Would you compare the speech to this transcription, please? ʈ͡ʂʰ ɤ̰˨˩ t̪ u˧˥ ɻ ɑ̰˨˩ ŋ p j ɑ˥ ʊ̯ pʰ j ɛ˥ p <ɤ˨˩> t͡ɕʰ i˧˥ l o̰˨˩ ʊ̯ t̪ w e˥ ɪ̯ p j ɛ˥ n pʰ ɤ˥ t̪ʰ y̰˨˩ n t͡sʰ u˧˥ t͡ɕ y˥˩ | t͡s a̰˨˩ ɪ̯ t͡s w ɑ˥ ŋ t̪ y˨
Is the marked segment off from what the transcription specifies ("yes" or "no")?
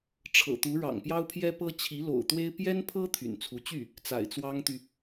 yes